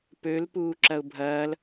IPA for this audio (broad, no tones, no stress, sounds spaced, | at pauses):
p ø l p uː ǁ ɐ ʊ̯ bʱ ɐː l